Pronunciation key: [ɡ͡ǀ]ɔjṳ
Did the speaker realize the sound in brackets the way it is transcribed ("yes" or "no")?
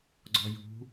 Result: yes